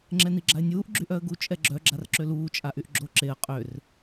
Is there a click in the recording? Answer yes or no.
yes